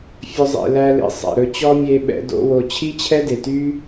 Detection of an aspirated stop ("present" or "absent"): present